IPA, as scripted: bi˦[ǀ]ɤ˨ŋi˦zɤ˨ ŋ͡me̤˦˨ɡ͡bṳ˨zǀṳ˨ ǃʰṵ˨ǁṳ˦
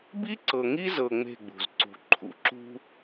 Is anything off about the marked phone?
no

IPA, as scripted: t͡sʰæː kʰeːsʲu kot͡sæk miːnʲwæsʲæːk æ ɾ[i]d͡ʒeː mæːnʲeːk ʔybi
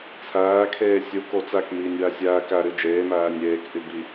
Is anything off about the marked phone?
yes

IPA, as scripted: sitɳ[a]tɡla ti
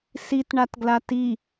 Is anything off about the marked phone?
no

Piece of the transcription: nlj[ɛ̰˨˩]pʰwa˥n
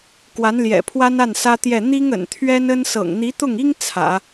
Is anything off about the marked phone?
no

